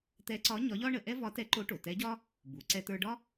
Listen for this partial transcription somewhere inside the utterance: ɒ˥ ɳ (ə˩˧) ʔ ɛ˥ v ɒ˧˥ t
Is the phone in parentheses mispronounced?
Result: no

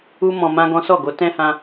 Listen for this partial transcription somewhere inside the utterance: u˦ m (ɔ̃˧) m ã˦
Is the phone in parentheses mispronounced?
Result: no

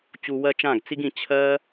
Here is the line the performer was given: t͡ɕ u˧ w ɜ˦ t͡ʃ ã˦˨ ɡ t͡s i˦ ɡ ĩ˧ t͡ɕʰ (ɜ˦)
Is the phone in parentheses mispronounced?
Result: no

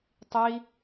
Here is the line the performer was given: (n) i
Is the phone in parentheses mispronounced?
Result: yes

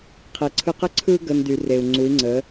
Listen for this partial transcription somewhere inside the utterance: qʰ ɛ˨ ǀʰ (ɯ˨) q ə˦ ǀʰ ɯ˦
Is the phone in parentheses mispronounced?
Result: yes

